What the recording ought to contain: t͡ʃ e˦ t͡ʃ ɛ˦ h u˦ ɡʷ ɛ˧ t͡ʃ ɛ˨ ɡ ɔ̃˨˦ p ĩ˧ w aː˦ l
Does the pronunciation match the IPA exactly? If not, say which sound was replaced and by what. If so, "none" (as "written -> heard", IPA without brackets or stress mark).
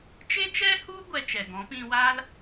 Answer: none